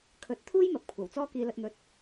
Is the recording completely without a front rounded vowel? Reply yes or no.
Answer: yes